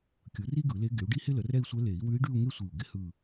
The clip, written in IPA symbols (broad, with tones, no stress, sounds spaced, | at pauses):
kʲ ɯ˩˥ r i˥ ɡ ɯ˨˩˦ l e˧˥ ɡ ɪ˩˥ u̯ ɖ i˥ h ɪ˥ l ə˩˥ r ɛ˥˧ i̯ sʷ ɛ˧˥ l e˨˩˦ i̯ w ʉ˧˥ i̯ ɖ ʉ˥˧ u̯ ŋ e˥ sʷ i˧˩ u̯ ɡ ɪ˧˥ h ɯ˥˧